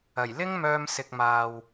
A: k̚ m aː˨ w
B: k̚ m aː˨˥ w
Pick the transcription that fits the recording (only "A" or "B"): A